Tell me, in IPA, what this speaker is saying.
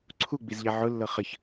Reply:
ǀʰ u ɡ͡b i z ʎ ɛ ʕ ʊ lː ɤ χ ə ç

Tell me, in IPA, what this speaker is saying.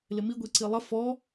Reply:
l ɪ m i ɡʷ e ǀ i lˠ ə f ɔ

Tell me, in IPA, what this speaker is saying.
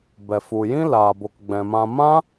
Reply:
b ɛ˨ f u˨ j ĩ˦ l aː˨ b o˨ k ɡ͡b ɛ̃˨ m ã˧ m ã˦

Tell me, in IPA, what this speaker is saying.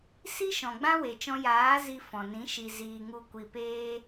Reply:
s i˦ ʃ ɔ̃˨ ɡ͡b ã˦ w e˨ t͡ʃ ɔ̃˧ j aː˨˦ z i˧ f ɔ̃˨ n ĩ˨˦ ʃ i˨ z iː˨ ŋ u˨ kʷ i˨ p eː˧

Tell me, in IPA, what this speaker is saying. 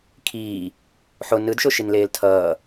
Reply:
kʰ iː | ħ o n ɯ d ʃ o ʃ i n l eː l tʰ ʌː

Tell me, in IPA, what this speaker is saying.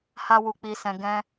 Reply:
h a˦ w u˧ k͡p i˧ s ɛ̃˧ ɡ ɛ̃˧

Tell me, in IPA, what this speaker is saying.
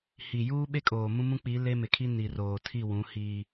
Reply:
h i˨ j uː˦ ɓ e˦ kʼ oː˨ m ũ˦ m ũ˦ k͡p i˨˦ l e˦ m ɪ˨ kʰ i˦ n i˨ r oː˨ tʰ i˦˨ w ũ˨˦ h i˦

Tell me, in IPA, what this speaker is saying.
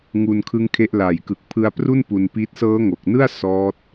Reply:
ŋ u˧ n kʰ ɯ˦˥ ŋ kʰ e˦˥ ʔ l a˨˩ j k ɯ˨˩ k̚ pʰ ɯ˧ a̯ p r u˥˩ n p u˧ n p i˦˥ t̚ s ɤː˦˥ ŋ o˨˩ k̚ n ɯ˥˩ a̯ s ɔː˦˥ t̚

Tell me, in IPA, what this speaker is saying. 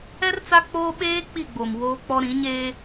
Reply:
ɛ˦ r t͡s a˦ k͡p oː˦ ɓ eː˦ k͡p i˦˨ ɡ͡b o˨ m w oː˦ k͡p ɔ˦ ɾ ĩ˨˦ ɲ eː˦

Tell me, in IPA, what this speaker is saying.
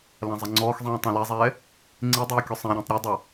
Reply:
l ã zˤ ɛ ŋ͡ǀ ɔː x zˤ ĩː tˤ ã l ɛ zˤ ɛː | ŋ͡ǀ i dˤ ɛ e̯ kʲ ʊ sˤ ẽ ɾʲ ẽ tˤ ɾʲ ɛ dˤ a

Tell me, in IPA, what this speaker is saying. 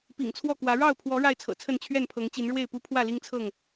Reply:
p ḭ˨˩ ŋ t͡sʰ w ɔ˥˨ k w ä˨˦ ɻ ɑ˥˨ ʊ̯ pʰ w ɔ˨˦ ɻ a˥˨ ɪ̯ t͡sʰ ɤ̰˨˩ t͡sʰ ə˥˨ n t͡ɕʰ ɥ ɛ˥˨ n pʰ ɤ˨˦ ŋ t͡ɕ i˨˦ n ɻ w e˥˨ ɪ̯ p u˦ pʰ w ä˥˨ l i˦ ŋ t͡sʰ ɤ˥˨ ŋ

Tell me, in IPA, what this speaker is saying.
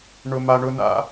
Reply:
ɳ ʊ˨ m a˨ ɳ ʊ˨ n̪ a̰˨

